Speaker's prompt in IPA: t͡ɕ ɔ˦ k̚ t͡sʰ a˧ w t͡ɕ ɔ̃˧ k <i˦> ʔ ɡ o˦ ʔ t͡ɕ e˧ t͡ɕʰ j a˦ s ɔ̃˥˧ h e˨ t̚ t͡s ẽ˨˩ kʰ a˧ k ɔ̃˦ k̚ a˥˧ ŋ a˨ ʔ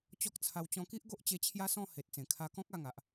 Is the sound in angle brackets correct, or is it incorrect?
correct